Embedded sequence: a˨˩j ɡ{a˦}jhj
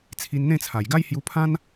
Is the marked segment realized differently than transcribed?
no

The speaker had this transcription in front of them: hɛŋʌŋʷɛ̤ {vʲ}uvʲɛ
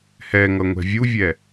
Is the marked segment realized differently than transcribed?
no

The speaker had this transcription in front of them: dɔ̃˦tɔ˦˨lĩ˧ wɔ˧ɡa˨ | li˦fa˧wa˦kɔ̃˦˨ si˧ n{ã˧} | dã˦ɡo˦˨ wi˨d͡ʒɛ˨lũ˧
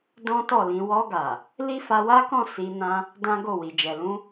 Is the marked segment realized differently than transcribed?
no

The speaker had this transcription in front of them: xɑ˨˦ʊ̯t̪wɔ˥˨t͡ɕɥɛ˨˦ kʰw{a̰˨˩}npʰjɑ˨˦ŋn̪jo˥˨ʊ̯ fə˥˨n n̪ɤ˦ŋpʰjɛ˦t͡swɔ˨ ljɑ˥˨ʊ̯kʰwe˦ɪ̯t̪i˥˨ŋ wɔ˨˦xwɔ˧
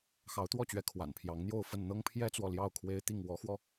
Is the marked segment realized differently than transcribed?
no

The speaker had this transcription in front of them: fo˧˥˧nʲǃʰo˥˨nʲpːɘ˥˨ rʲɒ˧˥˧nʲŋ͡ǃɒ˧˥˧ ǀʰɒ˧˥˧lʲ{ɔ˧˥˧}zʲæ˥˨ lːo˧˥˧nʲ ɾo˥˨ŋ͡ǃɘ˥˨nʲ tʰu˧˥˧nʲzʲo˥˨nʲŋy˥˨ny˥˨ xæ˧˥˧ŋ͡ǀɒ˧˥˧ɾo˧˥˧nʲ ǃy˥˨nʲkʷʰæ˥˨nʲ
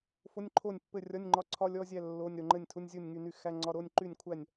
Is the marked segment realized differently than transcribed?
no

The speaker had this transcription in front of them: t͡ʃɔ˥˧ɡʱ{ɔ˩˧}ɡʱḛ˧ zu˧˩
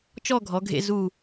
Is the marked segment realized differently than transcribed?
no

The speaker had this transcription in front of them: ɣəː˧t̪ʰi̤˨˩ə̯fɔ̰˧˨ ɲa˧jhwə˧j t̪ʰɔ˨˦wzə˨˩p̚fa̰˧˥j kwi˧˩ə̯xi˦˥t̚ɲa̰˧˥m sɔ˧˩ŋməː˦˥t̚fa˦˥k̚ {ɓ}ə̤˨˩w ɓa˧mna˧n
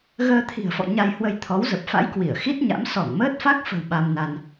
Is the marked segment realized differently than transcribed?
yes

